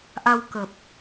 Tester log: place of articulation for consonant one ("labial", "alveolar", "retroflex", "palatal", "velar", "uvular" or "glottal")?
glottal